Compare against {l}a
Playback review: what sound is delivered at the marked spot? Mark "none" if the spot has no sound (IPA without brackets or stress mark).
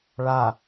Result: ɭ